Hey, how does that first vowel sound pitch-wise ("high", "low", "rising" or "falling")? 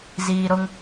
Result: low